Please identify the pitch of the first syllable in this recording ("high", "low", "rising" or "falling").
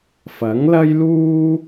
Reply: rising